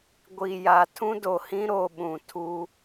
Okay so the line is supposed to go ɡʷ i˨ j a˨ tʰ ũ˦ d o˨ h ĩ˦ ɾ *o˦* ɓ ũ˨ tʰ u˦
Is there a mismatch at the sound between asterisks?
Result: yes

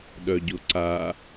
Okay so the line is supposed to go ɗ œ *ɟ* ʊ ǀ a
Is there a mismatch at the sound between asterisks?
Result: no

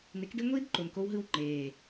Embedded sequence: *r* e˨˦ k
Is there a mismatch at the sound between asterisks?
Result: yes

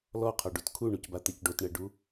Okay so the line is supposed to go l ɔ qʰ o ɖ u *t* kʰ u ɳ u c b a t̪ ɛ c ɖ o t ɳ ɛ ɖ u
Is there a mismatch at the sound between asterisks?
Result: no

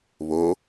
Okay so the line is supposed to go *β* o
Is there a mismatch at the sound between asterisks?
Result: no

